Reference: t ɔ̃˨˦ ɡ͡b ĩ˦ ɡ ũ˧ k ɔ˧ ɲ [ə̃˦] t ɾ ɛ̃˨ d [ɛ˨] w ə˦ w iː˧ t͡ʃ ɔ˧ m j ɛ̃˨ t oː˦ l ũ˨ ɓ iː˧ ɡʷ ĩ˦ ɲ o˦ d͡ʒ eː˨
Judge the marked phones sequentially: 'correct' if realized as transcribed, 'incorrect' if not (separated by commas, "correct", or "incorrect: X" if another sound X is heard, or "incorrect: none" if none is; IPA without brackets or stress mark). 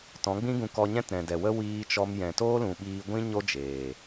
incorrect: ɛ̃˦, correct